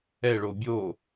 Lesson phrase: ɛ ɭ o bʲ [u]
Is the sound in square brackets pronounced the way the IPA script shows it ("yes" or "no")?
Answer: no